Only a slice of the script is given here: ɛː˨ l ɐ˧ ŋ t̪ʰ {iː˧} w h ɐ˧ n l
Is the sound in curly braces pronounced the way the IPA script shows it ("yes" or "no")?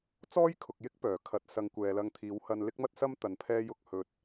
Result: no